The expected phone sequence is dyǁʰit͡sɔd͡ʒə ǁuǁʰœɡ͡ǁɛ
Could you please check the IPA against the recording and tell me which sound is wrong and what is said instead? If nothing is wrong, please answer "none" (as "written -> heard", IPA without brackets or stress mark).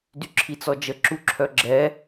none